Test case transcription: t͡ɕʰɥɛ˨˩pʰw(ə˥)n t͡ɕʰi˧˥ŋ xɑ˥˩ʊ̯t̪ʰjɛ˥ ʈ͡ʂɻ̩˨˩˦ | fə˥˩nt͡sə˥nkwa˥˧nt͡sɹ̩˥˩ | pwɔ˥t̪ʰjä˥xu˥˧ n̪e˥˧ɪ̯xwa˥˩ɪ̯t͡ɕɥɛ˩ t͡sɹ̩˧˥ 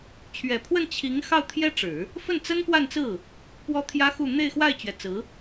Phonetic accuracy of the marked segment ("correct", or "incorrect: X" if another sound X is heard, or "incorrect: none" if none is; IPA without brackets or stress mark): incorrect: ə˥˩